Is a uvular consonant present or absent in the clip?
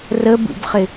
present